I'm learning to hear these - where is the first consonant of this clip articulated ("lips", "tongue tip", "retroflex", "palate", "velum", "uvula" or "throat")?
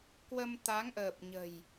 velum